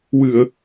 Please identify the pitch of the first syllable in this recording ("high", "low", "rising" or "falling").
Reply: low